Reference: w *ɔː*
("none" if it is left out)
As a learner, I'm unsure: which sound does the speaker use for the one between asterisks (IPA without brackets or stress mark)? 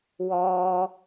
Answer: ɔː